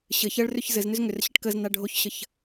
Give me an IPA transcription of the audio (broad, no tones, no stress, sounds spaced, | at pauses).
ɕ ɘ ç ɜ ɭ r ʏ ç z ɘ z n ʏ z ŋ ʏ r ɕ ə ʈ k ə z n a ɖʱ o ç ɕ ə ç